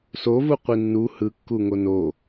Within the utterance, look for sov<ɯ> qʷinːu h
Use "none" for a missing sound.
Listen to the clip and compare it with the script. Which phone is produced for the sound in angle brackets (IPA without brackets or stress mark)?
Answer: u